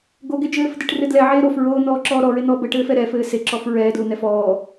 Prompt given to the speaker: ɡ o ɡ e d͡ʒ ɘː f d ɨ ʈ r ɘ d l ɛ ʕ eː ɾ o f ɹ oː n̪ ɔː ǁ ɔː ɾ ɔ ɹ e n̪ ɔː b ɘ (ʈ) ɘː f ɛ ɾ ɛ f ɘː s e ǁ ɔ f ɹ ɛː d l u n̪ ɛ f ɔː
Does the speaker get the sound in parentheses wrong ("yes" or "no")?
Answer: no